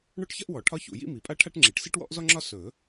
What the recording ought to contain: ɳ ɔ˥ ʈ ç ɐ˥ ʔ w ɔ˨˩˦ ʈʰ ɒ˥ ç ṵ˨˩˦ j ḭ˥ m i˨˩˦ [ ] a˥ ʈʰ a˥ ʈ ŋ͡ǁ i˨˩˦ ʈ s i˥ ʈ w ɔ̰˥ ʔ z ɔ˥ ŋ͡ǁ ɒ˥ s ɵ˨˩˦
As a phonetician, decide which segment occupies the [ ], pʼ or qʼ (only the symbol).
pʼ